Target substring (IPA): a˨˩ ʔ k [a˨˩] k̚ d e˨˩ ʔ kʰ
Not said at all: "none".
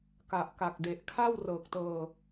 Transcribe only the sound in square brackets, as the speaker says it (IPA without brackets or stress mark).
a˨˩